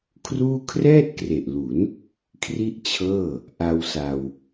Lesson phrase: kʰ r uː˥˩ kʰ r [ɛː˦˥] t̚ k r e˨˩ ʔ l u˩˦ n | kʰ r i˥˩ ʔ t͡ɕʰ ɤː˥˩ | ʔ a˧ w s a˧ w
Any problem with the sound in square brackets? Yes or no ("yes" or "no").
yes